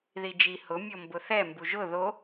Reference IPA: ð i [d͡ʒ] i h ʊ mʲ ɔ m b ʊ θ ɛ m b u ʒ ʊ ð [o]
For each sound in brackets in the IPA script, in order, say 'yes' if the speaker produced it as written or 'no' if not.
yes, yes

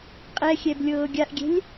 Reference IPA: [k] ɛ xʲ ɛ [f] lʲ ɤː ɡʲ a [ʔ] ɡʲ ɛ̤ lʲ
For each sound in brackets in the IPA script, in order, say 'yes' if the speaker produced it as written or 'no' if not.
no, no, yes

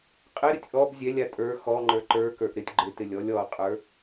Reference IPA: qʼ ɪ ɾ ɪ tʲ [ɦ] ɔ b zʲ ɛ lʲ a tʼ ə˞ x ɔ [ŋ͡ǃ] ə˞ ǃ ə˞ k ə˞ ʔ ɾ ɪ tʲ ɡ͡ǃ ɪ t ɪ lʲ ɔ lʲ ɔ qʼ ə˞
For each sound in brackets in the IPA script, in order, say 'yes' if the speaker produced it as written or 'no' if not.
no, yes

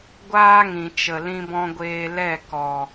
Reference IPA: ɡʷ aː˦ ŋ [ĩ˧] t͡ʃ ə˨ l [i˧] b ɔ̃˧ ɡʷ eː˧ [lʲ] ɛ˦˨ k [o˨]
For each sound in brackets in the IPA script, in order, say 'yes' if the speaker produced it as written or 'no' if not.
no, no, no, no

